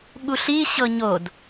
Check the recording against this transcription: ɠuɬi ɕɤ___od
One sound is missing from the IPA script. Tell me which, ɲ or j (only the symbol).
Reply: ɲ